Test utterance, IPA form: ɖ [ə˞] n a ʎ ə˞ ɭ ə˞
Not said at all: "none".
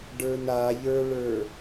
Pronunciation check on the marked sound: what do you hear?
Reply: ə˞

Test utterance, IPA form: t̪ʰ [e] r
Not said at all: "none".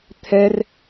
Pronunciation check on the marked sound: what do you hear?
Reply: ɛ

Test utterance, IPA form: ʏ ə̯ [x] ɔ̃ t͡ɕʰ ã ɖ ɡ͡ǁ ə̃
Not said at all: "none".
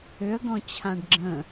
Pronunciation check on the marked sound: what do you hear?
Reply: ɡ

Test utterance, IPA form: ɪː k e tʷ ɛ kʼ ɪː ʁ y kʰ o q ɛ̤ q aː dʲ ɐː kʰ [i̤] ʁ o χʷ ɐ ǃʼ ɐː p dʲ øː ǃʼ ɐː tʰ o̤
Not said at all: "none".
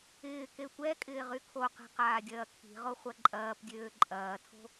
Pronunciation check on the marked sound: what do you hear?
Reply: i̤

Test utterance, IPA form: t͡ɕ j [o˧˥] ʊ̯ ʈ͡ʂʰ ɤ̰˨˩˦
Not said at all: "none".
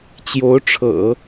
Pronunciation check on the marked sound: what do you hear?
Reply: o˧˥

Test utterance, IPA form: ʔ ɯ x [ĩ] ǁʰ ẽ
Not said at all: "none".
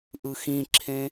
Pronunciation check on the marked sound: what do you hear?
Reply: ĩ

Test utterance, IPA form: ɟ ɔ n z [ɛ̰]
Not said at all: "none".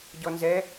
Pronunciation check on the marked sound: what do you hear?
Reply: ɛ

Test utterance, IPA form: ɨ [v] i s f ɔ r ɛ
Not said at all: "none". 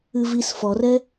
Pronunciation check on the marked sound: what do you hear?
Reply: v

